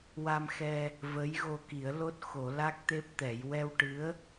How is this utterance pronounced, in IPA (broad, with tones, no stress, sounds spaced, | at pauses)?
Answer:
w a˧ m x ɛ˧ | v ə˧˥ j ɣ o˧ k i˨˩˦ ə̯ l o˦˥ t̚ x o˨˩˦ l a˦˥ k̚ t̪ e˦˥ p̚ t̪ ɛ˨˩˦ j w ɛ˧ w ʈ ɨ˧˥ ə̯